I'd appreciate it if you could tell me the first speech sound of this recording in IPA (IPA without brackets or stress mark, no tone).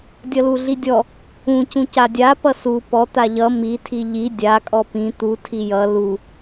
dʲ